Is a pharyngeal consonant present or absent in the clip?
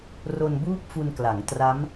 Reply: absent